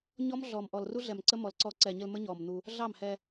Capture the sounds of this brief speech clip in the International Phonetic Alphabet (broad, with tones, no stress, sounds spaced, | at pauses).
ɲ ɔ˦ m ɮ ɔː˨ m ʔ ɔ˨ l r u˦ ɮ ɛ˨ m ǀ ə˦ m ɔ˨ l ǀ ɔː˧ ǀ ɛː˨ ɲ ə˧ l m ə˦ ɲ ɔː˨ m n̪ u˧ | ɮ ɑ˦˨ m h ɛ˧